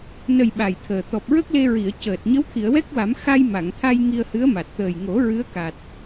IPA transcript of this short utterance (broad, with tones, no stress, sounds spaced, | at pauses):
n ə˨˩ j ɓ a˨˩ j t̪ʰ əː˨˩ t̪ ɔ˨˩ p̚ ɹ ə˦˥ k̚ l e˧ ɹ i˨˩˨ ə̯ c əː˨˩ t̚ ɲ ə˧˥ w t̪ʰ i˨˩˨ ə̯ w ɛ˦˥ k̚ w a˨˩˦ m x a˧ j m a˨˩˨ ŋ t̪ʰ a˧ j ŋ i˧ ə̯ h ɨ˧˥ ə̯ m a˨˩ t̚ t̪ əː˨˩ j ŋ o˨˩˦ ɹ ɨ˧˥ ə̯ k a˨˩ t̚